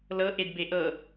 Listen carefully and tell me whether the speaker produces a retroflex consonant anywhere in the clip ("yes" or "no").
no